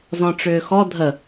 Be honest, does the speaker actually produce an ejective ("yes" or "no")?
no